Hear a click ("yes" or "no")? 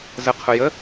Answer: no